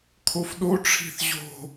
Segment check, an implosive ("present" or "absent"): present